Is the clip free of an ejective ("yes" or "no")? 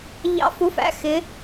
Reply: yes